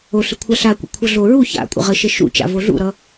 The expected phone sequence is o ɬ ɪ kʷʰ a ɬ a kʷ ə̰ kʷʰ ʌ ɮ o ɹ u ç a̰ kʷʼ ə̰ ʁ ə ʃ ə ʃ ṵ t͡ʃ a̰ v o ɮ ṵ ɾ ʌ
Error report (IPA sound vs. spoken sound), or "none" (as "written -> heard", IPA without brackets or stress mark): none